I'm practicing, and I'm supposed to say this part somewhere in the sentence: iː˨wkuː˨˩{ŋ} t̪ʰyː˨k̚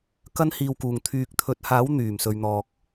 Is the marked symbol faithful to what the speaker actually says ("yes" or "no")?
yes